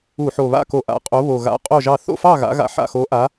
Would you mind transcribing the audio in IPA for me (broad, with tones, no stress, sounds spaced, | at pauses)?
u˧˩˧ ħ o˨˩ β a̰˥˨ k o˧˩˧ ʔ a̰˨˩ qʼ o˨˥ β o˨˩ ɣ a̰˨˥ qʼ o˥˨ ʒ ɑ˥˨ θ o̰˥˨ f ɑ˥˨ ɣ a̰˨˥ ɣ a̰˨˥ ħ a̰˨˩ x o˨˥ ʔ a˨˥